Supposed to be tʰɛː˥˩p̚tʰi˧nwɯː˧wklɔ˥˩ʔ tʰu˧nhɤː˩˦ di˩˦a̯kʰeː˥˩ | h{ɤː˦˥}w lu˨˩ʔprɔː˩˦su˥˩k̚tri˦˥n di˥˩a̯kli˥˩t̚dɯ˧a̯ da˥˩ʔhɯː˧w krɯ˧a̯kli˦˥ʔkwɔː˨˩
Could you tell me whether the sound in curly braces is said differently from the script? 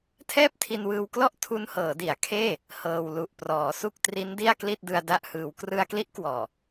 yes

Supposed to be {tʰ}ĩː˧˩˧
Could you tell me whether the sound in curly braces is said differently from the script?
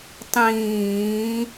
yes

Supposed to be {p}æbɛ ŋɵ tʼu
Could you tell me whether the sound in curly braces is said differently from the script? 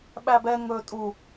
yes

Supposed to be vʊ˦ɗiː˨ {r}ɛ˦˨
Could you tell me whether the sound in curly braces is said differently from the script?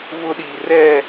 no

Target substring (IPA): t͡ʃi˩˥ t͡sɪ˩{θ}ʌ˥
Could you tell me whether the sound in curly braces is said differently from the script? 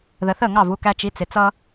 yes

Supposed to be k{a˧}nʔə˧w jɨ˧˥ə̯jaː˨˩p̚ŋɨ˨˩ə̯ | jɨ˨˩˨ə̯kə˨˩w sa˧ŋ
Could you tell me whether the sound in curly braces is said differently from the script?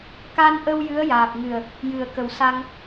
no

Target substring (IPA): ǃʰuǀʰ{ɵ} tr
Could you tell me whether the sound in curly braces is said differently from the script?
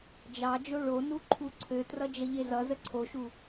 yes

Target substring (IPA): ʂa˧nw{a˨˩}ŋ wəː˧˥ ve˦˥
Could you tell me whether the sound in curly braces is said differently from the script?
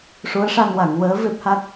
yes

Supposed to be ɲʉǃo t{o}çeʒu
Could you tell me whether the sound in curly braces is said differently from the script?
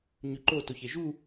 no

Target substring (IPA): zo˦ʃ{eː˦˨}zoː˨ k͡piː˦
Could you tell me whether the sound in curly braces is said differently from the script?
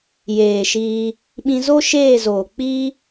no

